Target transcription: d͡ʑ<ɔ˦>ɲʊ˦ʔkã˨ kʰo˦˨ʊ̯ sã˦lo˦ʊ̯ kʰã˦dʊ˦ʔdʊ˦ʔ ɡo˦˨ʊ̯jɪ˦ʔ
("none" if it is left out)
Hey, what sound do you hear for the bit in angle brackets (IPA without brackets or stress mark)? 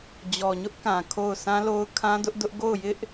ɔ˨